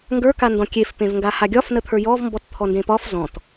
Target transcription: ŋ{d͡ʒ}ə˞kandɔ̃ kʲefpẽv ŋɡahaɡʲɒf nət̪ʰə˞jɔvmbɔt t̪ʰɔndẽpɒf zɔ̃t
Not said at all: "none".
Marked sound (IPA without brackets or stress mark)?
ɡ